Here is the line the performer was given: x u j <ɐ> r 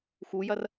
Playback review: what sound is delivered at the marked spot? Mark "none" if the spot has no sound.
ɐ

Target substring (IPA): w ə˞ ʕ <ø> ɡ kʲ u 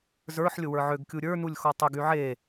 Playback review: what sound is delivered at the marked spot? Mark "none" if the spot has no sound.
ø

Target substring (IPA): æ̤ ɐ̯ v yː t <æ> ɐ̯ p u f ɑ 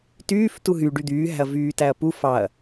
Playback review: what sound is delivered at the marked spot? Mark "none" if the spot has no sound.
æ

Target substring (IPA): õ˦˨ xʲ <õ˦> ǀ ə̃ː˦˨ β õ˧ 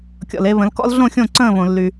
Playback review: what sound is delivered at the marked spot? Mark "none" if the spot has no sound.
õ˦˨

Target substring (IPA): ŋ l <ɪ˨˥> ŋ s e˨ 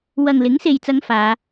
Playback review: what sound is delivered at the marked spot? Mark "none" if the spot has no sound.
ɪ˨˥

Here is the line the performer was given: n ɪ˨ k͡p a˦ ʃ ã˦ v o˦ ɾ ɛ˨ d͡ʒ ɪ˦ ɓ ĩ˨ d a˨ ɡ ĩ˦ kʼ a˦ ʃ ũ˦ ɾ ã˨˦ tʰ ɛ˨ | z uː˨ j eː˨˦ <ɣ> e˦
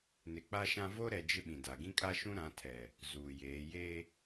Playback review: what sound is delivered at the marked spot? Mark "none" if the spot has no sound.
j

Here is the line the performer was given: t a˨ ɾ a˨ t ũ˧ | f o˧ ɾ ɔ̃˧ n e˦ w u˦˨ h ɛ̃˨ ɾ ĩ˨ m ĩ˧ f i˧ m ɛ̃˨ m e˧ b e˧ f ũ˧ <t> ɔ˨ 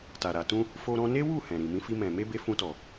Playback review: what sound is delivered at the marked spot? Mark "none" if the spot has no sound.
t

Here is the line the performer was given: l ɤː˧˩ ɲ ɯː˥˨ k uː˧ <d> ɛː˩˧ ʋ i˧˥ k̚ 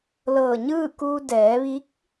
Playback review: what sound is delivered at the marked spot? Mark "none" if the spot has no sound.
d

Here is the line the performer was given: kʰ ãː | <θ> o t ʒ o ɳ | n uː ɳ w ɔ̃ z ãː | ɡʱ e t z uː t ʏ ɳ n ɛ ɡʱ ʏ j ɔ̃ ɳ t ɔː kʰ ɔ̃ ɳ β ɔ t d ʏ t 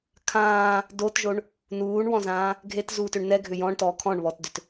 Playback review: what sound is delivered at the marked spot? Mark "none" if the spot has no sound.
d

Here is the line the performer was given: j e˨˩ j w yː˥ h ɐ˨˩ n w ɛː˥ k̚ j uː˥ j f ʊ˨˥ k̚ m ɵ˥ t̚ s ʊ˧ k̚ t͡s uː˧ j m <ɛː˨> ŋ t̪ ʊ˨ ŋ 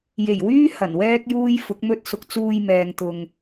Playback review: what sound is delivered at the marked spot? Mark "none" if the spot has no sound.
ɛː˨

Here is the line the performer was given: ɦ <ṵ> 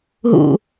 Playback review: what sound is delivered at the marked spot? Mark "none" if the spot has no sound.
ṵ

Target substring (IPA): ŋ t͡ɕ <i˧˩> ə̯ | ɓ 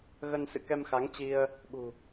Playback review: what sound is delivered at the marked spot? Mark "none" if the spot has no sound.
i˧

